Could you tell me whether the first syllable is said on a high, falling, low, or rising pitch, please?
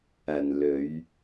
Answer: low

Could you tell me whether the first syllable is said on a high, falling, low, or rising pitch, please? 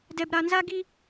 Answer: high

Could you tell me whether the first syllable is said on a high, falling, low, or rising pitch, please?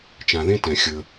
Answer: low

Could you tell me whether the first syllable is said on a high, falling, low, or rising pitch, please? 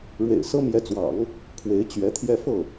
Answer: low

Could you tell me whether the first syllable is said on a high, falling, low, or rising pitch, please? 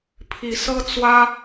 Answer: rising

